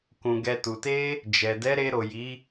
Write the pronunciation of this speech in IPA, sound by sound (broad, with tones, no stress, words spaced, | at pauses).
kũ˨ ɡɛ˨tu˨te˧ | d͡ʒɛ˨ dɛ˨˦ɾe˧ ɾo˨ji˨˦